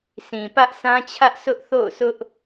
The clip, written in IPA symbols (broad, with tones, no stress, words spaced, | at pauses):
sʰĩ˨ pä˦ʔsã˦t͡ɕʰä˦ʔ sʊ˦ʔθo̰˦˨ʊ̯sʊ˦ʔ